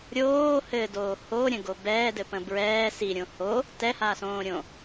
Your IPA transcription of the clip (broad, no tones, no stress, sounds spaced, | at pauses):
ɾʲ oː h ɘ d oː h o ɾʲ ə̃ ɡ o b ɛː d ɘ p ə̃ b ɹ ɛː s i ɾʲ õ h o | t ɛ h aː s õː ɾʲ õ